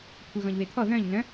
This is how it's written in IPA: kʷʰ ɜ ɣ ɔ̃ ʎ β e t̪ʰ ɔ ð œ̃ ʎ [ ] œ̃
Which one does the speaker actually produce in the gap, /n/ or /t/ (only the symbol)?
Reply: n